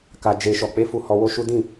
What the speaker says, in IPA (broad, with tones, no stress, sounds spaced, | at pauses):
k a˨ d͡ʒ e˨ ʃ ɔ˨ k͡p e˧ f u˧ h ɔ˧ w o˦ ʃ u˦ d ĩ˦˨